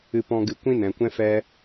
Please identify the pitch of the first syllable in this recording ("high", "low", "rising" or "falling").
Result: low